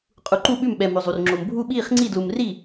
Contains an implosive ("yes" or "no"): yes